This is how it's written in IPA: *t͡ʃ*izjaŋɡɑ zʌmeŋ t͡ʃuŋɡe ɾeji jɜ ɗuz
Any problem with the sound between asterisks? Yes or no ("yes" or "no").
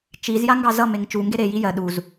no